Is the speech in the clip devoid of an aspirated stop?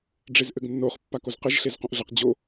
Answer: yes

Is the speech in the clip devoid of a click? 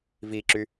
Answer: no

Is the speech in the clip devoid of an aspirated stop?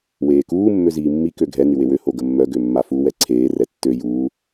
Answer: no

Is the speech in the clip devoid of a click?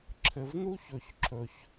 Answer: no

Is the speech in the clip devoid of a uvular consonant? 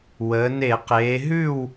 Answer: no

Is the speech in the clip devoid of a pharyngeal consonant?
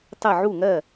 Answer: no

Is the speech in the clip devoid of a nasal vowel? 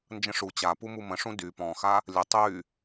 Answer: no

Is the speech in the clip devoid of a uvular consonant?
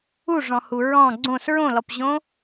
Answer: yes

